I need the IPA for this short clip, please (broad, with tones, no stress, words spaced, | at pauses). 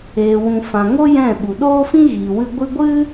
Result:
eː˨wũ˨ fã˨ ŋo˦ jɛ̃˦˨ɓu˨ ɗoː˦fĩ˦ɣiː˨wɨ˧ ɡʷi˧ɡʷɨ˦